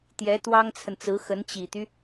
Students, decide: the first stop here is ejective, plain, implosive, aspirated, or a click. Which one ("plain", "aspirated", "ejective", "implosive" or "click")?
plain